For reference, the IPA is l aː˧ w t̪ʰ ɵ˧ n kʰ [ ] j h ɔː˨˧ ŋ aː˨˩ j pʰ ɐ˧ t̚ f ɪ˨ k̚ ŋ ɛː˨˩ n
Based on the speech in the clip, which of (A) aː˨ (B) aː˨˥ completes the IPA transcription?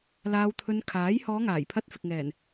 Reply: B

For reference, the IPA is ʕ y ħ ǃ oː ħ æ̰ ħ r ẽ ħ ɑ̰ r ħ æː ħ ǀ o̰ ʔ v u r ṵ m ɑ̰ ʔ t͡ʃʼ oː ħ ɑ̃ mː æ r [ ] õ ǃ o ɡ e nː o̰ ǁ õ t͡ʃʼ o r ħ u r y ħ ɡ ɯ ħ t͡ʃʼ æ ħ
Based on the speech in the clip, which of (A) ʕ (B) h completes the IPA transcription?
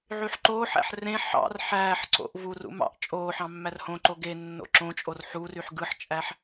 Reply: B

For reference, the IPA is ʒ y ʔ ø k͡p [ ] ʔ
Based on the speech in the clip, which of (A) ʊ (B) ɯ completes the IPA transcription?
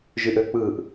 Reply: B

